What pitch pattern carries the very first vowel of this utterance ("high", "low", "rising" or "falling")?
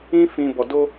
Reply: high